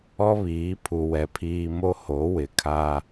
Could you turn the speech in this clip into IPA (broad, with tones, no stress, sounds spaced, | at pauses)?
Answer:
ɔ˦ β iː˨˦ pʰ u˨ w ɛ˨ pʰ iː˨ m o˦ h o˨˦ w ɪ˨ kʰ a˦